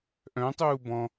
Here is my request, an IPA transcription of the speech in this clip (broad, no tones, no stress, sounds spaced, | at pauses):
ʔ œ̃ tˤ uː b ɔ̃